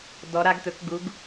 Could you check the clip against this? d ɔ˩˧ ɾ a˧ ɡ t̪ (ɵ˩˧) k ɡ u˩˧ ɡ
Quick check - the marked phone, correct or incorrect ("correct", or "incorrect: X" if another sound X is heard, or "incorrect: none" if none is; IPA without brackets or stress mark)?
correct